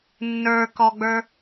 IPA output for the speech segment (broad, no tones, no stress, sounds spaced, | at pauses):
nː ə˞ k ɔ ɡ͡b ə˞